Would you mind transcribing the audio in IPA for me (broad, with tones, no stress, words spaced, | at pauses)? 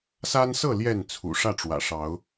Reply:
sa˦nsɤ˥˨ ljɛ˥˨nt͡sʰṵ˨˩ʂä˥˨ʈ͡ʂwä̰˨˩ ʂɑ˨˦ʊ̯